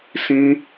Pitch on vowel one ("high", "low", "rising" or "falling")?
high